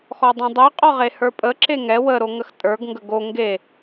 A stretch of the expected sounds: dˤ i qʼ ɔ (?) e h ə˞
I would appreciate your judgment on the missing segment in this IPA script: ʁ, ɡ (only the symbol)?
ʁ